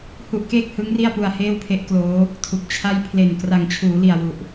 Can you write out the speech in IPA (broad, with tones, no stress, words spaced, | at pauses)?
hu˦˥ʔkeː˥˩k̚ hɯ˦˥ŋ ri˥˩a̯pu˧a̯ heː˥˩wpʰe˦˥ʔkloː˦˥ | tʰu˨˩k̚t͡ɕʰa˥˩j pʰle˨˩n kra˨˩ŋt͡ɕʰuː˩˦li˨˩a̯ wu˨˩ʔ